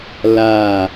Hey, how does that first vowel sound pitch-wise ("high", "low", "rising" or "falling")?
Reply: falling